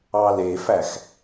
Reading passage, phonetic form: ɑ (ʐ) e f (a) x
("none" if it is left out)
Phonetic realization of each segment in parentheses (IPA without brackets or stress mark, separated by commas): l, æ